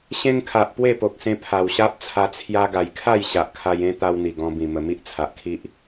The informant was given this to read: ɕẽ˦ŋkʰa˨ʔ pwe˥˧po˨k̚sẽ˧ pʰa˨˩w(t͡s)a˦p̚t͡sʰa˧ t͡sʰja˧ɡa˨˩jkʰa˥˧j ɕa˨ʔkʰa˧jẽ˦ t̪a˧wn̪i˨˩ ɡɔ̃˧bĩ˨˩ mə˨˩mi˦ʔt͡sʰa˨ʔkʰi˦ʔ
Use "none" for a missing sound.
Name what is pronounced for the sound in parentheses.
ɕ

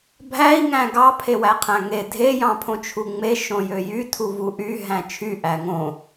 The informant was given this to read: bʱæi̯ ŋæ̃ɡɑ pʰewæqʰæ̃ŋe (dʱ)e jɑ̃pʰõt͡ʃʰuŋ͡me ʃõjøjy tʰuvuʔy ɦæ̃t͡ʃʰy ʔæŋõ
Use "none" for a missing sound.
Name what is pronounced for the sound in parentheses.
dʱ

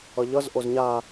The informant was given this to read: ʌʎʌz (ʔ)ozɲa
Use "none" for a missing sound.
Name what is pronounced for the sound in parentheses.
ʔ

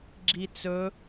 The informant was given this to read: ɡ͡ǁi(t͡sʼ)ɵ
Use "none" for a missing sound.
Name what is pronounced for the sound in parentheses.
t͡s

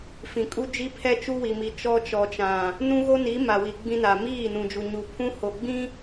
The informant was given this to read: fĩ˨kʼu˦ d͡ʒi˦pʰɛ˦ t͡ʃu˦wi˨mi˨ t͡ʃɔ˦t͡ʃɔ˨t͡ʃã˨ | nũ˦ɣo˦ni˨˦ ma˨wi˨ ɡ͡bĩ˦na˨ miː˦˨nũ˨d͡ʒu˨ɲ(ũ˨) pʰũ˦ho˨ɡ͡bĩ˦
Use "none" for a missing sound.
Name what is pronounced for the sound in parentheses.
u˨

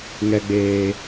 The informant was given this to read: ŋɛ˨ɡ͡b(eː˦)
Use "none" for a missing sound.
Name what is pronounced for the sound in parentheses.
eː˨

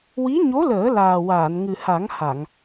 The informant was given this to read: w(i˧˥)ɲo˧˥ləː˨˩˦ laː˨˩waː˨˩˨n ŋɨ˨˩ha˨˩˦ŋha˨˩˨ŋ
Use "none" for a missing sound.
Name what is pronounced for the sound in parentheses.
i˧˥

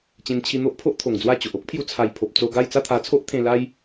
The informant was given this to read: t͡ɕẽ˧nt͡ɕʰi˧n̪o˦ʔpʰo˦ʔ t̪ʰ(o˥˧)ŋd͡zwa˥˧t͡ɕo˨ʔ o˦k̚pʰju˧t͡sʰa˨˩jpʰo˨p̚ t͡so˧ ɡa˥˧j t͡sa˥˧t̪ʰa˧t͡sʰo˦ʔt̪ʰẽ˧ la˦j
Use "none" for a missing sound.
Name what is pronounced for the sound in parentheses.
o˨˩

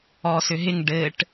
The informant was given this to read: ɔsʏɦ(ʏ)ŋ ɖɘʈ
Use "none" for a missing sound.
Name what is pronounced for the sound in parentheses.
ɪ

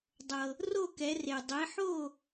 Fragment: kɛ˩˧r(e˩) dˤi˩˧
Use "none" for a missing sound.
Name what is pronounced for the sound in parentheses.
e˩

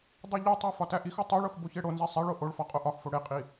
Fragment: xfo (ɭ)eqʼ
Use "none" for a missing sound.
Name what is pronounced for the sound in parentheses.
ɽ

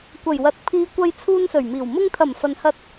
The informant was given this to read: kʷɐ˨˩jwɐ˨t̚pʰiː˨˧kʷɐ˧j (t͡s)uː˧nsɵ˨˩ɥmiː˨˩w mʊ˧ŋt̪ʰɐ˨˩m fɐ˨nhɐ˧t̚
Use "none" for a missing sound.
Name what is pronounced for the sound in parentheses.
t͡sʰ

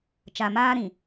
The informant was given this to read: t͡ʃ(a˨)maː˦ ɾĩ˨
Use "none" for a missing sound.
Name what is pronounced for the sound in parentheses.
a˨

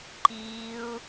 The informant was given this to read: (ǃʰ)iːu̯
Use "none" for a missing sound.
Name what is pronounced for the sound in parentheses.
ǃ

